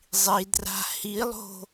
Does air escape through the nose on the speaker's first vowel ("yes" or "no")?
no